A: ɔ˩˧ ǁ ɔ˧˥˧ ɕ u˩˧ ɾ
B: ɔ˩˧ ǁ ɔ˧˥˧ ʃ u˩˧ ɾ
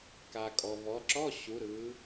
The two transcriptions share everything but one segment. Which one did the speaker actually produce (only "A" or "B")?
A